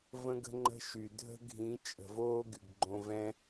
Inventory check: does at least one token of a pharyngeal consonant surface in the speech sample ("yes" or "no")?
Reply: no